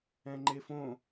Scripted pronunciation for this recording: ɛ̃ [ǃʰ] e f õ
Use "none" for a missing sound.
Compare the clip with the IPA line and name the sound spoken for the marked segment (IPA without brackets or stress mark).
ŋ͡ǃ